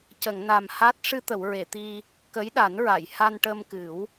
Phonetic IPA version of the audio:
c ə˨˩˨ ŋ n a˨˩ m h a˦˥ t̚ ʂ ɨ˧ t̪ ə˨˩˨ w ɹ e˨˩˨ t̪ i˧ | k ə˧˥ j ɗ a˨˩˦ n ɹ a˨˩˨ j h a˧ n ʈ ə˧ m k ɨ˨˩˦ w

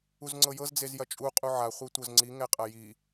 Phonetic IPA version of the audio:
u z ŋ͡ǀ ɤ j ɤ z d͡z e z j ɐ t͡ʃʼ u qʼ u ʕ a χʷ e tʷ ɤ z ŋ͡ǀ i ŋ ɛ qʼ ɐ j i

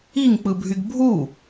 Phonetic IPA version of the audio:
i ŋ k͡p ɯ bʱ y ɡ bʱ u

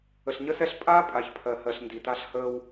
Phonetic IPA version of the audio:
ə˨ ɬ ɲ ə˦ s ɛ˦ ɬ pʼ aː˦ pʼ a˨ ç pʰ ɜ˨ h ɜ˨ ɬ n d i˨ t a˦ ɬ h əː˦ w

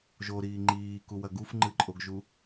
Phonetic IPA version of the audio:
ʒ o ɾ iː ŋ͡ǃ iː k u w ɐ ɡ u f ŋ͡ǃ ɨ ǃʼ o ɡ ʒ u

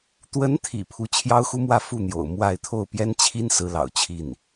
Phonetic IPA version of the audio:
t̪ w ə˧˥ n t̪ʰ ḭ˨˩ pʰ u˧˥ t͡ɕʰ j ɑ˥ ʊ̯ x u˥ m w ä˥˧ f u˥˩ n̪ j o̰˨˩ ʊ̯ m w a˥˧ ɪ̯ t̪ʰ o˥˩ ʊ̯ p j ɛ˥ n t͡ɕʰ i˥ n s ɹ̩˧˥ l ɑ̰˨˩ ʊ̯ t͡ɕʰ i˥˩ n

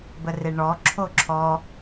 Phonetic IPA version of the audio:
b ə r e ɳ ɔ ǁʰ o ǁʰ ɔ

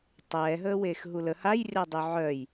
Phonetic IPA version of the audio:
tˤ ɛː ɦ əː w eː x ɦ u l ə h a j rʲ a dˤ y ʕ œ j

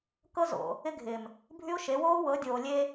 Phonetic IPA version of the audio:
k ɤ˦ z o̰˨ | ɪ˦ ɡʱ ɪː˨ m | bʱ y˦ ʊ̯ ʃ e˨˦ w oː˦ w ɤ˨˦ dʲ oː˨ lʲ e˦

